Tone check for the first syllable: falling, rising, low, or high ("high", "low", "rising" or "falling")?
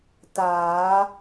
rising